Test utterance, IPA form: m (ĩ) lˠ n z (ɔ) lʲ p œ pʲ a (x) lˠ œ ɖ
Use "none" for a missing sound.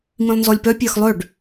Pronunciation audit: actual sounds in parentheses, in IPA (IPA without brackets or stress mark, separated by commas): ĩ, ɔ, x